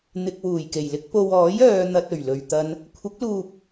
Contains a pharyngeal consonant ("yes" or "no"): no